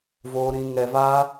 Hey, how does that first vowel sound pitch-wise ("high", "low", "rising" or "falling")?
high